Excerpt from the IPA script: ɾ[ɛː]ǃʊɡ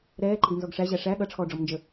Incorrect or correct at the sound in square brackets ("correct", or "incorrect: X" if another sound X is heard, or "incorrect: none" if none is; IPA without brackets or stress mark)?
correct